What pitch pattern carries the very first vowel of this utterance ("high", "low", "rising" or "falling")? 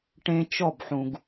high